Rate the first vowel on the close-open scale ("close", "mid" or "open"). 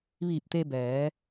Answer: close